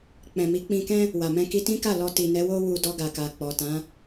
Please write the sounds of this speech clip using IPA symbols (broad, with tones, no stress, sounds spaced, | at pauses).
k͡p ɛ̃˨ m i˨˦ k͡p ĩ˧ k ɛ̃˦ | w a˨ m ɛ̃˧ k i˧ t ĩ˦ k a˦˨ l ɔ˧ t i˨ n ɛ˨˦ w o˦ w u˧ d ɔ˧ ɡ a˨ k a˨ k͡p ɔ˨ t ã˨˦